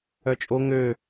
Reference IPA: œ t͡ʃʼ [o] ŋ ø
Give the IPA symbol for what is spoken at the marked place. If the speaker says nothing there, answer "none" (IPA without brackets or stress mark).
o